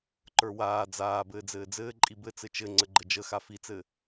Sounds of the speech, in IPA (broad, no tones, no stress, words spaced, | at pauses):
ǃə˞waː d͡zaː bɘːd͡zɘːd͡zɘː ǃʼibɘ t͡sɘt͡ʃɘ ŋ͡ǀəɡ͡ǃəd͡ʒəxa fit͡sɘ